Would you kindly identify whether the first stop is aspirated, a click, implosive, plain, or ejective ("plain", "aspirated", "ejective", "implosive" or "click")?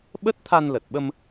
implosive